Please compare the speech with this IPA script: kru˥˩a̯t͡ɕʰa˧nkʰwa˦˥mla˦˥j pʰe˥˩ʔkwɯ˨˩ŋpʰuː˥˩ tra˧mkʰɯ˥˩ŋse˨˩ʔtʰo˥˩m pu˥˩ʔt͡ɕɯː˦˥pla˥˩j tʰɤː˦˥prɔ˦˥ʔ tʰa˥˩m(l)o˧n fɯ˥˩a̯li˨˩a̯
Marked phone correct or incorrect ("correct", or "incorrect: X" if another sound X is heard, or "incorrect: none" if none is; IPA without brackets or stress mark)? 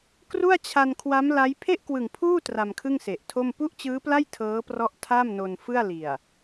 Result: incorrect: n